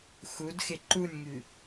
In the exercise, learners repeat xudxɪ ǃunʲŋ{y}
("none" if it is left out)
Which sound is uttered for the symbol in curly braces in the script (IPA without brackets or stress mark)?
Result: y